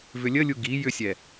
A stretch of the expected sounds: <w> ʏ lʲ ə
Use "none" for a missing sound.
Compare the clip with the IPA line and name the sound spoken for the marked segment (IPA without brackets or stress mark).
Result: v